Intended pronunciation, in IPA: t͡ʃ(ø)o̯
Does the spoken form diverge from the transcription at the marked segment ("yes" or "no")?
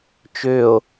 no